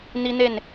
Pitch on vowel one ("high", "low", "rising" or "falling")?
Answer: high